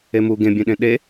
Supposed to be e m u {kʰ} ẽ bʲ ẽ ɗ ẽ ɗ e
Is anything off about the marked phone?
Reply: yes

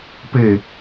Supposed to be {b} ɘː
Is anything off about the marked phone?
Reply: yes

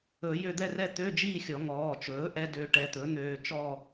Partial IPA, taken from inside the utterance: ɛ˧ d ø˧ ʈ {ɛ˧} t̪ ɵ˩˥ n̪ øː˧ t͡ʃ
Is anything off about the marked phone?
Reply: no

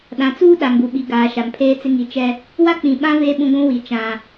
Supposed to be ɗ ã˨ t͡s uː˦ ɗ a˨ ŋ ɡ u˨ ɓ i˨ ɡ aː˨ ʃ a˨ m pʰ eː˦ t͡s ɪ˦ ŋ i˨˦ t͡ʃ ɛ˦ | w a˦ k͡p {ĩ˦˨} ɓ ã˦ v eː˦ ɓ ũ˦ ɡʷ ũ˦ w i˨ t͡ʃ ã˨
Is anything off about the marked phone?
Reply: yes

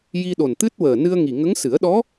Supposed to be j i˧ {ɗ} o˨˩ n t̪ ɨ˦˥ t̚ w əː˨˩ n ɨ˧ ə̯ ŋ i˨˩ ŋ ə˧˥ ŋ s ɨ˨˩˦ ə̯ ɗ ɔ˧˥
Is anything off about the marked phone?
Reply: no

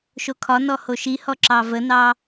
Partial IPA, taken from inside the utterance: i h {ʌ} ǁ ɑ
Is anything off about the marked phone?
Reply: yes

